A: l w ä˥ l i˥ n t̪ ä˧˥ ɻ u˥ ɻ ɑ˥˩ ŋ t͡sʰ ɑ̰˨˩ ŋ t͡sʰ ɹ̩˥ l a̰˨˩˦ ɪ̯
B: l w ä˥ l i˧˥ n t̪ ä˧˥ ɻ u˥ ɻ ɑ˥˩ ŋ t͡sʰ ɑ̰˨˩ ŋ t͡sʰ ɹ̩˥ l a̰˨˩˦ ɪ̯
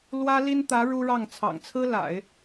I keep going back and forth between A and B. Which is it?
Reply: A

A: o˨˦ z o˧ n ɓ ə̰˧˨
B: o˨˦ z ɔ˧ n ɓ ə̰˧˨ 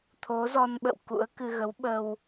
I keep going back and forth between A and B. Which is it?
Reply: B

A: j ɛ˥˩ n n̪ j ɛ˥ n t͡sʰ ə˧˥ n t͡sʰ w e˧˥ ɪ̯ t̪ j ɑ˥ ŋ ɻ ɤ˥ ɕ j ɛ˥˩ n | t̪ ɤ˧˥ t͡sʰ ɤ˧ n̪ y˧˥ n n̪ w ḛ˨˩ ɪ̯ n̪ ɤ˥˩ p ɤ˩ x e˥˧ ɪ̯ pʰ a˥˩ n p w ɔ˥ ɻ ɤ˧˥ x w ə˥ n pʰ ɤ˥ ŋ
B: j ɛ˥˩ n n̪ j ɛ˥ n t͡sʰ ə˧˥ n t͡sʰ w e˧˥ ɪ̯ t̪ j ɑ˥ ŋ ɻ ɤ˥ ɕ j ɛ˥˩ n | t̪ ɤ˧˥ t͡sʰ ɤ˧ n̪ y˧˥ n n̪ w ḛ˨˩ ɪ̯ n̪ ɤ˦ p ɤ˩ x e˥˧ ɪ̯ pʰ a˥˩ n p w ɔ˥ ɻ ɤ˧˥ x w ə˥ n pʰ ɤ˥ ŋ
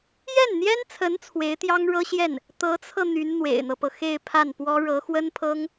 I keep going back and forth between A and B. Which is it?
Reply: B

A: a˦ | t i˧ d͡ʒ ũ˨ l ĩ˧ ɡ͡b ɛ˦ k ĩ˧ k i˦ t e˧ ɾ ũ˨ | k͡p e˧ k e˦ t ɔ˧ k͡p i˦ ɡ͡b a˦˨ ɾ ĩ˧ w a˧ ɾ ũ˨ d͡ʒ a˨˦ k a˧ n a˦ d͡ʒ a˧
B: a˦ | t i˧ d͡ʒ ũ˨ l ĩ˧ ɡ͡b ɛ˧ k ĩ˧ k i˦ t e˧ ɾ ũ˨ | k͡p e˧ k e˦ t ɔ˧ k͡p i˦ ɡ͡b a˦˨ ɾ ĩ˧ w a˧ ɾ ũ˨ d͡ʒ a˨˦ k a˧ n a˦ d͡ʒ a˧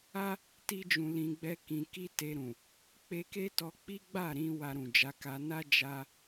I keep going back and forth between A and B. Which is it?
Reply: A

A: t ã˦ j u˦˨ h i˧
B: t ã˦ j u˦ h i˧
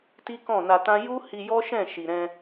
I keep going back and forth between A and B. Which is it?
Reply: B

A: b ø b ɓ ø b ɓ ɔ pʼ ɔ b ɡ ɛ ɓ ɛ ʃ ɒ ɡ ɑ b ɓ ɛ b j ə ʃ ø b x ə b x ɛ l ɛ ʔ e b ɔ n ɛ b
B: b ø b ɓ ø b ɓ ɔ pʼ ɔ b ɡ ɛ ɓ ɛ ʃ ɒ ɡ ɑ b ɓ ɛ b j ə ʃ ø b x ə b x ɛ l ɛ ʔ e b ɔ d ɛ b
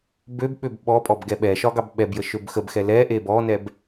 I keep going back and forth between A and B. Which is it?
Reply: A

